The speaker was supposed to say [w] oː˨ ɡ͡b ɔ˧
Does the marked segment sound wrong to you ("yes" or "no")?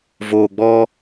yes